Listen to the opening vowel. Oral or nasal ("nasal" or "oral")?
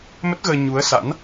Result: oral